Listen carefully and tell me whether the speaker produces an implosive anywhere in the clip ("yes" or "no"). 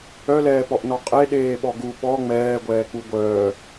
yes